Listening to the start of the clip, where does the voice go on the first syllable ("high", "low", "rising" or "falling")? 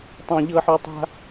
high